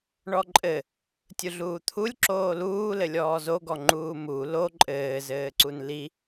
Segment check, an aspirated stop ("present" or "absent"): present